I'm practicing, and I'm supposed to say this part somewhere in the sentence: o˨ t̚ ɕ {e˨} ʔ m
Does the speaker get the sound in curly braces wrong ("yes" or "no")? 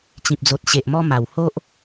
no